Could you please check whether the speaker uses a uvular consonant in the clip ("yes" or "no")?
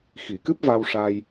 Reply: no